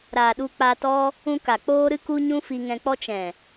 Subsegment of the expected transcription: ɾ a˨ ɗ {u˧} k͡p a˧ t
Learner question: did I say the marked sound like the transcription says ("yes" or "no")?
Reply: yes